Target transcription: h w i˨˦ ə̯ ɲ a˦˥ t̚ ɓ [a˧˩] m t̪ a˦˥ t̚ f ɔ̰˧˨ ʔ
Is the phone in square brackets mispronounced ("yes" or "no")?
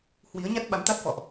yes